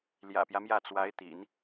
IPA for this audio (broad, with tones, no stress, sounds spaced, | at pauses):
l j ä̰˨˩ p j ä˦ m j ä˥˩ t͡s w a˧˥ ɪ̯ t̪ ḭ˨˩˦ n